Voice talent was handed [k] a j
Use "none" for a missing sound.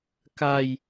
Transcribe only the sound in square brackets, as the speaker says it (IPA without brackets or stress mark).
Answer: k